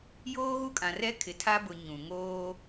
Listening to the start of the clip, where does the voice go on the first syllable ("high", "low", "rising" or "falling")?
high